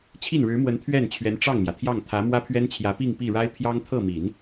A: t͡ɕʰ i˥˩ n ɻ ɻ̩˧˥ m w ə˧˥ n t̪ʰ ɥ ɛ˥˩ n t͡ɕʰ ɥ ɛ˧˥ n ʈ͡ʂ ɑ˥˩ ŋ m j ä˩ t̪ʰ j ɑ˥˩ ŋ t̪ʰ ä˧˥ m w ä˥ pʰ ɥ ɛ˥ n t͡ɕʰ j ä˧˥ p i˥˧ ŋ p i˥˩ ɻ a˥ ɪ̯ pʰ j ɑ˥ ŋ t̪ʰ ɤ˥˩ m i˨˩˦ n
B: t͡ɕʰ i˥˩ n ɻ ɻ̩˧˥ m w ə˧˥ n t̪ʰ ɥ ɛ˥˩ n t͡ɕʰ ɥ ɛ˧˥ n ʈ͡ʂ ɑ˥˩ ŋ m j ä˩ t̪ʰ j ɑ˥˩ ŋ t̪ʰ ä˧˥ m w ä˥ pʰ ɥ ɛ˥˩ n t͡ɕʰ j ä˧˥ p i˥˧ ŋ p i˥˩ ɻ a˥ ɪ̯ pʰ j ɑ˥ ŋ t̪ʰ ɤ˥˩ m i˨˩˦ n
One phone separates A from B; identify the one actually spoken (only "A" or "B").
A